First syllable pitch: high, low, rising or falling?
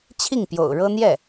falling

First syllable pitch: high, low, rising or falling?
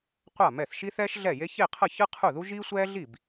falling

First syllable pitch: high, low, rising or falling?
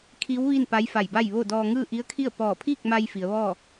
rising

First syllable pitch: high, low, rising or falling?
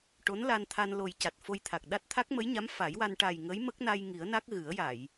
rising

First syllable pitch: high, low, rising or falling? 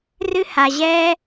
high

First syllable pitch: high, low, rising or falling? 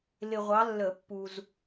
low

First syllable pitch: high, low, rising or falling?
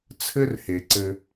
high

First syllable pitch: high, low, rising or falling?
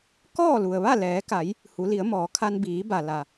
falling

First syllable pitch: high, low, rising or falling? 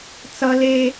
high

